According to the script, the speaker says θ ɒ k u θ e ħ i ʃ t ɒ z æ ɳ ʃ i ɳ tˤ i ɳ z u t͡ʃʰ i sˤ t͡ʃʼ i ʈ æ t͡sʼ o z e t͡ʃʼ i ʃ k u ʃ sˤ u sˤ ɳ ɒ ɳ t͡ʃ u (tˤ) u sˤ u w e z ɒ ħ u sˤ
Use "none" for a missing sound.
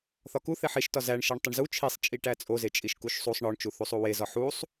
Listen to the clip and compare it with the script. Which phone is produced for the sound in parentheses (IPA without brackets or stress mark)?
θ